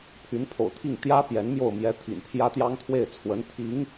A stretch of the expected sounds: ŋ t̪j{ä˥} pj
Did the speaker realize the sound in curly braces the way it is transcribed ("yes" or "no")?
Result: yes